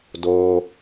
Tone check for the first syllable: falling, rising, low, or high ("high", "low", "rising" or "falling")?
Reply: low